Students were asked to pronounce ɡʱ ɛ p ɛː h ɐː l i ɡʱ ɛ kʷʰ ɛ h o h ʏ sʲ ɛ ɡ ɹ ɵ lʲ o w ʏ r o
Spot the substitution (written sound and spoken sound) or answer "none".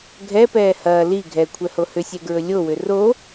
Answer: none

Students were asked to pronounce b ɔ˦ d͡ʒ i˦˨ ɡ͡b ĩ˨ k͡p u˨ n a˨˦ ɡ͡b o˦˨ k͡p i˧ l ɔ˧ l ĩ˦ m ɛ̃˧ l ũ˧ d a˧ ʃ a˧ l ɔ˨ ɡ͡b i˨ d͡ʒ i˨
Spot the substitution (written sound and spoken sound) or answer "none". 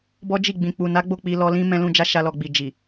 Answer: d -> d͡ʒ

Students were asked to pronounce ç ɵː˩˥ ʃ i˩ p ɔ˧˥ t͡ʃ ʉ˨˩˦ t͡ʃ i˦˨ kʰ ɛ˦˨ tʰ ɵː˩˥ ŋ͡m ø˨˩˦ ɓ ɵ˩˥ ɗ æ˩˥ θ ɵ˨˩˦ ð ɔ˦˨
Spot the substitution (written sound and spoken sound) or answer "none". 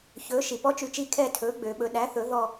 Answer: ŋ͡m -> ɡ͡b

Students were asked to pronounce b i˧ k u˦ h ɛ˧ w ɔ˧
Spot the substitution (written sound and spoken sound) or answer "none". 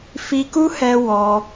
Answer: b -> f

